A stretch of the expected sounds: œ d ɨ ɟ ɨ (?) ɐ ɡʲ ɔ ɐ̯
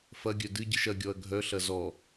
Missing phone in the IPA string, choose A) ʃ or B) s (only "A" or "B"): A